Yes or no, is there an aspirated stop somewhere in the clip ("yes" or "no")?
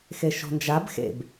no